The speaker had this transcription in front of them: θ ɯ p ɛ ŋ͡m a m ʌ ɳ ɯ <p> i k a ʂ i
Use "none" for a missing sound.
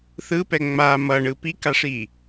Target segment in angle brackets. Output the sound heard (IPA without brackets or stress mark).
p